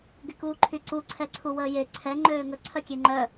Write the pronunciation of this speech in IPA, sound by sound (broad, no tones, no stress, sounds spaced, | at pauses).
ɡ ɪ k uː ǃʰ y ǀ u ǀʰ ɛ ǀʰ u w əː j e ǀʰ ɛ ŋ͡ǃ øː ŋ ə ǀʰ œ kʲ e ŋ͡ǃ œ